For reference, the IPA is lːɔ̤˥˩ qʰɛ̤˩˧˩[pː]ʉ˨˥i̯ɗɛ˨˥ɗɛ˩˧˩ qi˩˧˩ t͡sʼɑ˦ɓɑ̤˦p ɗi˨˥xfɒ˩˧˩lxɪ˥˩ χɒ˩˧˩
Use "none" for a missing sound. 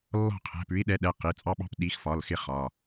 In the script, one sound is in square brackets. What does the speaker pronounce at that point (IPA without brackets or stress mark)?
p